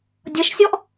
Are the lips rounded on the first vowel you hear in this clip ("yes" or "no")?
no